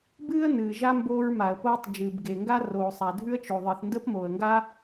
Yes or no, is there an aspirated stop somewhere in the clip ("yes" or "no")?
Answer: no